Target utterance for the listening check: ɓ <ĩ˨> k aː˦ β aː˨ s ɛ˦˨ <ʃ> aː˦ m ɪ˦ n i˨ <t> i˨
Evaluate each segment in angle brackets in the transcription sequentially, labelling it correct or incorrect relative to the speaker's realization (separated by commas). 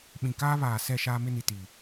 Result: correct, correct, correct